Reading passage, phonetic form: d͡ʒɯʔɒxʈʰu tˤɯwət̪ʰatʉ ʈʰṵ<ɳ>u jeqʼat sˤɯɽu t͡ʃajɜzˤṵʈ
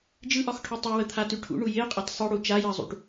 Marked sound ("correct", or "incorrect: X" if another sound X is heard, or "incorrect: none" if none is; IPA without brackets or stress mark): correct